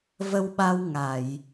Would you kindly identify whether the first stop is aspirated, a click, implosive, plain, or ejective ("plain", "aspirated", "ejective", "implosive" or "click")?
implosive